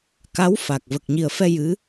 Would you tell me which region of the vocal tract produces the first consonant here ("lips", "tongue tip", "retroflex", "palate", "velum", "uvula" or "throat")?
velum